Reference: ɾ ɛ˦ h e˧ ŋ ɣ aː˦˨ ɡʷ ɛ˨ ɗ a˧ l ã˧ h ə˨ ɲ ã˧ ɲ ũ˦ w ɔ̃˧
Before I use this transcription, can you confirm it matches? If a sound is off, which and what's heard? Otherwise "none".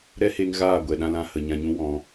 a˧ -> ã˧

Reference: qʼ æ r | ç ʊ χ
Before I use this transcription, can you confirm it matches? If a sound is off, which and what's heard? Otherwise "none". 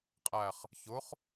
r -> χ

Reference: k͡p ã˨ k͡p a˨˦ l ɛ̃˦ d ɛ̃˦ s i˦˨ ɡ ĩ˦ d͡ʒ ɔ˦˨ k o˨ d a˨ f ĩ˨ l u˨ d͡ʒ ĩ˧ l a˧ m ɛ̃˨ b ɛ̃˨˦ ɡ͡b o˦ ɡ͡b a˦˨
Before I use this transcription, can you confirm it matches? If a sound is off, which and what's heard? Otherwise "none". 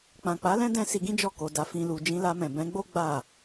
i˦˨ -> i˧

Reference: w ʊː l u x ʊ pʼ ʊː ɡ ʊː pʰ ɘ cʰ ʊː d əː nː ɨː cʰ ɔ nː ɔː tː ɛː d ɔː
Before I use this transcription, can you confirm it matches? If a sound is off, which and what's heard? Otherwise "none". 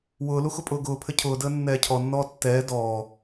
ɨː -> ɛː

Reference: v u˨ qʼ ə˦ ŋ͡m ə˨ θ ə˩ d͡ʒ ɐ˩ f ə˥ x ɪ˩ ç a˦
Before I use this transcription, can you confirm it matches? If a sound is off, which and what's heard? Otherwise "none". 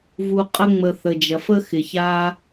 none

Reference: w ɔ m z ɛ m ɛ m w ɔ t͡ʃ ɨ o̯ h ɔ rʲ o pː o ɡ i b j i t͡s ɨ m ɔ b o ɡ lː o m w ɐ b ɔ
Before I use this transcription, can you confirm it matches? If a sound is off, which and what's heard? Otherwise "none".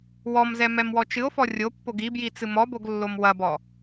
h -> f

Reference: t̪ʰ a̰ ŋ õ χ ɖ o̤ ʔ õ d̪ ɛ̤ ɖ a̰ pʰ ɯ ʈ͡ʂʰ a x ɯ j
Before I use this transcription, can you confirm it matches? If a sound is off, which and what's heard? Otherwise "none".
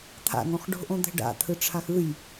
pʰ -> t̪ʰ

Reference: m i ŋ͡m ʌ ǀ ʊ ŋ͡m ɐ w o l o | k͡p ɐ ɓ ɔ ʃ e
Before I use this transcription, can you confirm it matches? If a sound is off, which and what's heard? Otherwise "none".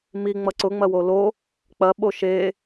ɔ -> o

